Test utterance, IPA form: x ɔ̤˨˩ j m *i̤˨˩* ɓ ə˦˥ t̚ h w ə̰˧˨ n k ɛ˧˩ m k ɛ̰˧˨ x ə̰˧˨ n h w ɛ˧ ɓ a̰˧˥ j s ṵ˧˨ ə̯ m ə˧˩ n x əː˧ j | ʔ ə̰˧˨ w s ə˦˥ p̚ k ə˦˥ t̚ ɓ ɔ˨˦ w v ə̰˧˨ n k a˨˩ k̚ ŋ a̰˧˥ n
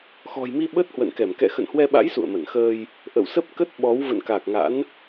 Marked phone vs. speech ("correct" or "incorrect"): incorrect